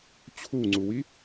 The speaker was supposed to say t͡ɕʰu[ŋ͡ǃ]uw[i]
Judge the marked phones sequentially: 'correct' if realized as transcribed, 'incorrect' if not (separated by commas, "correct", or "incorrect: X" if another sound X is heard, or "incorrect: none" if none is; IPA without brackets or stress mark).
incorrect: ŋ͡ǀ, correct